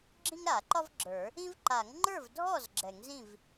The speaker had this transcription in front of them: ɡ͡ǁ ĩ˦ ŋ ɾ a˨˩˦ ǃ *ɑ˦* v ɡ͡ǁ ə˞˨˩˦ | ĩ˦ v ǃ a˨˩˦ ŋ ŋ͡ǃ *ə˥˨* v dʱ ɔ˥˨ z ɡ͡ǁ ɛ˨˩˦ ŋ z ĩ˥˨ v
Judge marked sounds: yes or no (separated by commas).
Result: no, no